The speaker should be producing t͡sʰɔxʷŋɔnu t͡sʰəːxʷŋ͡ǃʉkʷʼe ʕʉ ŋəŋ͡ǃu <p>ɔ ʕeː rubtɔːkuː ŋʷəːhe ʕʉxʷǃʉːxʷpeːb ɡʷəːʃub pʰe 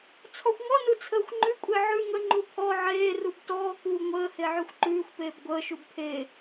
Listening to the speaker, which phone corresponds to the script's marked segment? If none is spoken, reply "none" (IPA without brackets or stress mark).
pʰ